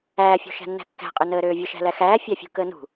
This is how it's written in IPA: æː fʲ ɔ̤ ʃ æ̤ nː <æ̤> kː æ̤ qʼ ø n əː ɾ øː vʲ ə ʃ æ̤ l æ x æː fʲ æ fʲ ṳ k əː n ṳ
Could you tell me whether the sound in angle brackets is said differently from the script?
no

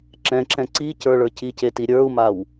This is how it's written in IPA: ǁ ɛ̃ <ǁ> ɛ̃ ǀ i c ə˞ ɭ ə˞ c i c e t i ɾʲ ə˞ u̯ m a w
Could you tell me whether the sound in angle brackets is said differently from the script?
no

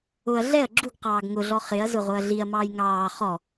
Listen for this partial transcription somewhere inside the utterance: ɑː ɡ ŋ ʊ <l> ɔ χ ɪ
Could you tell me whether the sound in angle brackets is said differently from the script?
yes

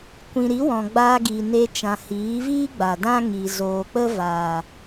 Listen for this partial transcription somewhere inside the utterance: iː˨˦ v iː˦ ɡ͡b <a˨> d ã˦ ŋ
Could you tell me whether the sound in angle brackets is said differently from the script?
no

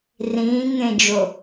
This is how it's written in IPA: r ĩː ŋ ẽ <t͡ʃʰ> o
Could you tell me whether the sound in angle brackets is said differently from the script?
yes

